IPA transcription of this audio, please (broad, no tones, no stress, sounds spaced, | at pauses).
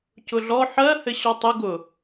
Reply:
c ʊ ɮ ɔ ħ ɜ h ɘ ɕ ɔ tˤ ɘ ɡ ʊ